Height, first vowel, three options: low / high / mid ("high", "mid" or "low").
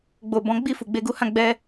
mid